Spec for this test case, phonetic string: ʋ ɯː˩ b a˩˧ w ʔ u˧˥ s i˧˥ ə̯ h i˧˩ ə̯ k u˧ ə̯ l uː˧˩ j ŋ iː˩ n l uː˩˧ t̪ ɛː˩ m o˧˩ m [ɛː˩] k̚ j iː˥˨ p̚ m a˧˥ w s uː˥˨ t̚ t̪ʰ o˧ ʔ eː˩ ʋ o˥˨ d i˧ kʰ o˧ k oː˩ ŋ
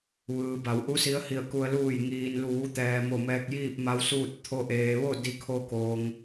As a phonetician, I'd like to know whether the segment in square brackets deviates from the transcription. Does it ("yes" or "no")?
yes